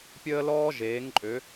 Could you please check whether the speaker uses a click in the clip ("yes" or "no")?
yes